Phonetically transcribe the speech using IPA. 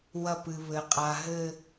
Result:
w ɐ˧˩ p ɨ˩ β ɘ˩ qʼ a˩ ɦ ɘ˧˩

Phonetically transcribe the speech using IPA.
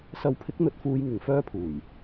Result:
s ɐ˨˧ w pʰ ɪ˨˥ k̚ n̪ ɵ˨˥ t̚ f uː˧ j ŋ ɪ˨ ŋ f œː˥ pʰ uː˨˩ j

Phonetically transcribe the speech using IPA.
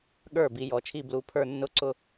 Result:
ɠ ə˞˧˩ b i˧ j ɔ˩˥ t͡ʃʰ i˥˧ b l u˧ pʰ ə˞˥˧ nː ʊ˥˧ ǀ ʊ˥˧

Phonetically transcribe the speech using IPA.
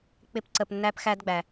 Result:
k͡p ɪ˥ p ǀ ə˧ p nː æ˥ p x æ˥ d ɡ͡b æ˩

